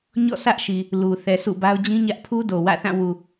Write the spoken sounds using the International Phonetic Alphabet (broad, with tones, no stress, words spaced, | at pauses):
ɲɔ̰˦˨ sä˦ʔʃi˨ | lu˨ θɛ˨ sṵ˦˨ba˦ʊ̯ d͡ʑĩ˦ ɲä˦ʔ pʰu˦do˨wä̰˦˨θã˦˨ wu˨